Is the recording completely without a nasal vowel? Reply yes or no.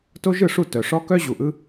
yes